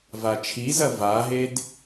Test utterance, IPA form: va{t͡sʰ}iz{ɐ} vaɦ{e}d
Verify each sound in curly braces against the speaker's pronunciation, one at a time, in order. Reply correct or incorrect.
incorrect: t͡ʃʰ, correct, correct

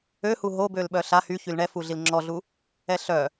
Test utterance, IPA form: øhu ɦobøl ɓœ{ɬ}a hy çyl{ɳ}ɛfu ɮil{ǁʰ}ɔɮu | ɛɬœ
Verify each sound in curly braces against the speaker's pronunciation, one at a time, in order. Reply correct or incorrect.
correct, correct, incorrect: ŋ͡ǁ

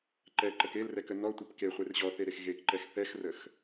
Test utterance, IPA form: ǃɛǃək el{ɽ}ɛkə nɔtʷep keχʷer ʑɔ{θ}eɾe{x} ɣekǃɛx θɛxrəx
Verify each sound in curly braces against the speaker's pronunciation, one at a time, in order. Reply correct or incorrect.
incorrect: r, correct, correct

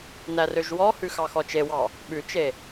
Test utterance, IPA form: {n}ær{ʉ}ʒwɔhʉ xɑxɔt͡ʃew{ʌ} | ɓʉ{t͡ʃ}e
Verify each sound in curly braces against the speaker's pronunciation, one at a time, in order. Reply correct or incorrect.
correct, incorrect: ø, incorrect: ɑ, correct

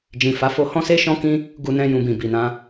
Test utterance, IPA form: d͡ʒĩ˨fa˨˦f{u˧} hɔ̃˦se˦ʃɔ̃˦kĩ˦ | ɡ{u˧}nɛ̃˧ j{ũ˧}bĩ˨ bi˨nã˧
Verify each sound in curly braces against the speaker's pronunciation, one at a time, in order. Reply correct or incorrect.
incorrect: o˧, correct, incorrect: ũ˨

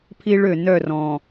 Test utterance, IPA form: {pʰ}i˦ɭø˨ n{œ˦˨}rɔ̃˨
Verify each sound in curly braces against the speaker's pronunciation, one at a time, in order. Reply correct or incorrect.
correct, correct

